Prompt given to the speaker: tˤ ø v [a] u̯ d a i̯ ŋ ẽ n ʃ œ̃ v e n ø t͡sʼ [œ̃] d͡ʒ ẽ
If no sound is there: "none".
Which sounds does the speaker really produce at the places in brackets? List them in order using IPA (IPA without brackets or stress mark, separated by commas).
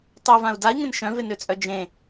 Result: ã, œ